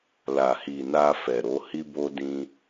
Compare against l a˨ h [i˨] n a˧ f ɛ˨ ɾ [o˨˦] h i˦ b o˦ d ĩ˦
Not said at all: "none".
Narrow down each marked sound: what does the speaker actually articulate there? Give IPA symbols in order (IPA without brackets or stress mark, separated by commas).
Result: i˨, o˨˦